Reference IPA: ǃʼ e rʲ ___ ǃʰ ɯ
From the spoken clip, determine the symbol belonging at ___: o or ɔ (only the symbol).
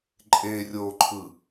o